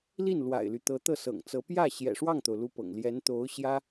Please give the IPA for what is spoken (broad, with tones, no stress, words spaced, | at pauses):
li˥˩nlwa̰˨˩ɪ̯ly˦ t̪ɤ˧˥t̪ɤ˥˩sɤ̰˨˩ŋ t͡sɤ˧˥ pjä˥˩ ɕjɛ̰˨˩ʂwɑ˥˩ŋt̪o˩ʊ̯ lu˥pɤ̰˨˩ŋ ljɛ˧˥nt̪o˧˥ʊ̯ɕjä˥